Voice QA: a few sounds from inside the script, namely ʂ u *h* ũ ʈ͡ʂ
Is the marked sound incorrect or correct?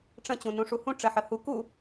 correct